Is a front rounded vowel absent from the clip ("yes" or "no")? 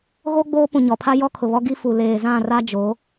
yes